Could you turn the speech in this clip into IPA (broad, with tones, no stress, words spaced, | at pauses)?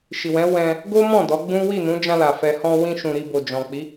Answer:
ʃi˨wɛ̃˨˦ wɛ̃˧ | ɡo˦mɔ̃˦˨ dɔ˨˦ɡ͡bũ˦ wi˦˨nũ˨˦d͡ʒã˧ la˨fɛ˧ hɔ̃˧wĩ˧ʃũ˨ ɾi˧bo˨d͡ʒɔ̃˨k͡pi˨˦